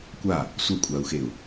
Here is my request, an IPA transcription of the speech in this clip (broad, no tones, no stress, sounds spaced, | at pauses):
kʷ a | sʷ ʌ kʷʼ a u̯ x e u̯